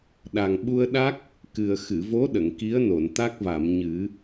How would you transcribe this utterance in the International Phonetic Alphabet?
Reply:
ɗ a˨˩ ŋ ɓ u˧ ə̯ ɗ a˦˥ k̚ | k ɨ˨˩ ə̯ x ɨ˨˩˨ v o˧˥ ɗ ə˨˩˨ ŋ k i˧˥ ə̯ n o˨˩˨ n t̪ a˦˥ k̚ v a˨˩˨ m ɲ ɨ˨˩˦

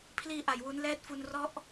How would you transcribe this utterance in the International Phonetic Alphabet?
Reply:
pʰ l iː˧ ʔ a˨˩ j w u˦˥ n l ɛː˦˥ t̚ f u˧ n r ɔ˦˥ ʔ

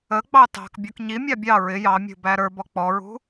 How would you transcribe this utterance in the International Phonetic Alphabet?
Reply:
ə ɡ͡b ɑ t ɑ̤ k bʲ ɔ k ɲ i mʲ ɑ bʲ ɑ ɹ ɪ j ɑ mʲ ṳ b æ ɾ ə˞ b ɔ k͡p ɔ ɹ ṳ

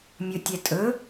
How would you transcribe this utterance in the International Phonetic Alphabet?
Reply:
mʲ ɵ tʲ ɛ tʼ ɵ

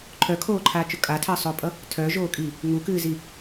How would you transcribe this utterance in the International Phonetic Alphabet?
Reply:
ǃʰ œ kʰ oː ǃʰ aː t͡ʃ ʊ kʼ a tʰ əː sˤ ʊː pʼ ʌ | tʰ œ ʒ oː kʼ i | ŋ u k ɨː z i

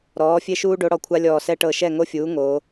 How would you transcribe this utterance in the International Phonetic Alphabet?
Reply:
ɾ ɔː˩˥ fʲ e˦ ʃ uː˦ ɖ o˩˥ ɽ ɔ˧˩ kʷʰ a˦ lʲ ɔː˧˩ s ɛ˦ ʈ ɤ˧˩ ʃ ɛ˥˩ ŋ o˦ fʲ uː˩˥ ŋ o˩˧

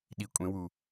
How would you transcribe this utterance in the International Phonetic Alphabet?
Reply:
ɗ i kʷʼ ẽ w u

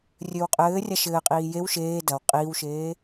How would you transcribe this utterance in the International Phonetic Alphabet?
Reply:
rʲ ɘː w qʼ ɘː rʲ a ʃ ɘː qʼ iː j e w ʃ eː d ɐ w qʼ iː w ʃ eː

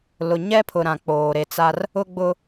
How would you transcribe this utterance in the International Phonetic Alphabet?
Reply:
l ʊ˨ ɲ ɛ˦ pʰ ʊ˨ ɾ ã˨ k͡p oː˨ ɾ e˨ t͡s a˦ r | ʊ˦ ɡ͡b ʊ˦

